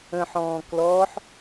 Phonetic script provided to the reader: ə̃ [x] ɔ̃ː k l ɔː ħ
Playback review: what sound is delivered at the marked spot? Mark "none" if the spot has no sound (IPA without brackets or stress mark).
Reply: ħ